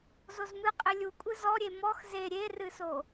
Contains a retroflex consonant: no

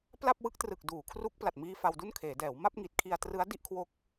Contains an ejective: no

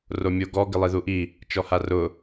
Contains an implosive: no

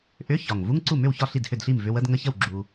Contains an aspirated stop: no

